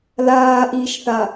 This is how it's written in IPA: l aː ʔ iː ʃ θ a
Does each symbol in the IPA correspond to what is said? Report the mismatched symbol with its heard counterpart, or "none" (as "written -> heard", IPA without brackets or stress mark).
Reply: none